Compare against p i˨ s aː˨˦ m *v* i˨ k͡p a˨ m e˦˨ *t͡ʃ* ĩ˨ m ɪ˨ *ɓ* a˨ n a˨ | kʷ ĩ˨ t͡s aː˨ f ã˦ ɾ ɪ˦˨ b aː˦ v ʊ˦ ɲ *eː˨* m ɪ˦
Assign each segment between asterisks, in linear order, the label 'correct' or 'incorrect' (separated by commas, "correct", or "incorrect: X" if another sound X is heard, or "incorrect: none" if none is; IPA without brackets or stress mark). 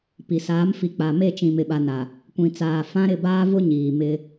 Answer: incorrect: f, correct, correct, incorrect: iː˨